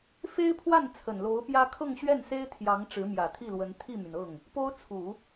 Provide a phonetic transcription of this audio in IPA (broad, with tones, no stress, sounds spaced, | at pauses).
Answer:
f e˥ ɪ̯ pʰ w a˥˩ n t͡sʰ ə˨˩ n l o˧˥ ʊ̯ p j ä˥ kʰ ɤ˥˧ ŋ ɕ ɥ ɛ˥˩ n s e˥ ɪ̯ t̪ʰ j ɑ˧˥ ŋ ʈ͡ʂ ɻ̩˧˥ m j ä˨˩ t̪ʰ i˥˩ l w ə˧˥ n t̪ʰ i˥˩ m y˩ n ɤ˥˩ ŋ | p o˥ ʊ̯ t͡sʰ u˨˩˦